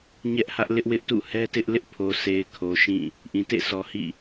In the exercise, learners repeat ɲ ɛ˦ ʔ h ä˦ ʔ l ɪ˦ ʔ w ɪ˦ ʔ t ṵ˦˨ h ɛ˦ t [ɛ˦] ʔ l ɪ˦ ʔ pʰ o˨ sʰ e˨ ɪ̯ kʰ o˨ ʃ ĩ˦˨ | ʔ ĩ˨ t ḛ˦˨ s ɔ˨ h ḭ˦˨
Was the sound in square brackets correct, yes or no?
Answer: no